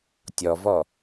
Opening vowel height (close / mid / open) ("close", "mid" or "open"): mid